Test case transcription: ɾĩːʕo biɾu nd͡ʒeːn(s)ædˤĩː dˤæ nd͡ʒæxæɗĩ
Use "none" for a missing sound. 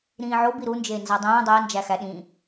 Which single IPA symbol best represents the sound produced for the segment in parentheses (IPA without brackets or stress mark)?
z